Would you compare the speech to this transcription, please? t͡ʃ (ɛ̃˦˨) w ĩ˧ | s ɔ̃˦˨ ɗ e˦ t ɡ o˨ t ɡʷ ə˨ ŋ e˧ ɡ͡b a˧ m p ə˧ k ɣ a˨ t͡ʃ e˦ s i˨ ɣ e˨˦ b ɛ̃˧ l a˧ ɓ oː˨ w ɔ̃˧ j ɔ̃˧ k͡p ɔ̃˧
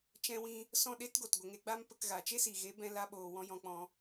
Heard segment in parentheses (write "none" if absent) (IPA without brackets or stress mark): ɛ̃˧